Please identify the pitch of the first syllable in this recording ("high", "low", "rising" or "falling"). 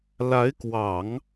rising